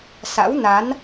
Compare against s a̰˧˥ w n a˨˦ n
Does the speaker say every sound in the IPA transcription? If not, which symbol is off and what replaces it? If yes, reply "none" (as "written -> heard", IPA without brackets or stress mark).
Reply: none